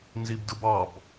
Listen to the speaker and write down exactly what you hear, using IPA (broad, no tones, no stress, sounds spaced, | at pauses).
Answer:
n z i b d ɯ b ɑ b